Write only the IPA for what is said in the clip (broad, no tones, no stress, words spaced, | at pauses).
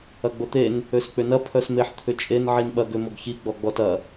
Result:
ɐɡ͡bot̪en | øsk͡pʏnɐ pʰœsmeħ t̪ʰʏt͡ʃʼen ʕinɓɐ ɡømoɡçi ɡ͡bɔɡ͡bɔtɐ